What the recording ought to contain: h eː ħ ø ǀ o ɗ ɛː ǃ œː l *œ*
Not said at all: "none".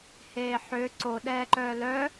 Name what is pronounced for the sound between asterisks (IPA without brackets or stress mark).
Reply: œ